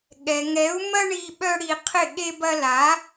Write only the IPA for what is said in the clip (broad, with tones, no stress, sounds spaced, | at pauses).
ɠ ɛ˨ ŋ ɛ˨˦ u̯ m ɐ˦ ɳ i˧ ɓ œ˦ ɽ i˧ qʰ ɪ˦˨ ɠ e˦ b ɐ˦ l a˨˦